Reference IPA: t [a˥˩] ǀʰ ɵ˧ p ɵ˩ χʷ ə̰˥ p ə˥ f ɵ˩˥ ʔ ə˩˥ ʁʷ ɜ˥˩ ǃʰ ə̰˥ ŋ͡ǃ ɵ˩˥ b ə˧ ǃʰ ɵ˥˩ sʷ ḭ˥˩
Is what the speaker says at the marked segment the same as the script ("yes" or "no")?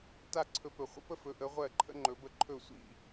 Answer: yes